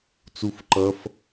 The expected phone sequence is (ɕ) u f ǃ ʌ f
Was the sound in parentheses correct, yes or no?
no